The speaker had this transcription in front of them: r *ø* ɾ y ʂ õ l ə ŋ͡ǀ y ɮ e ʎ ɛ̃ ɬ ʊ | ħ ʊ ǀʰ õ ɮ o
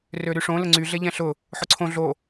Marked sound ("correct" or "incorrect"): correct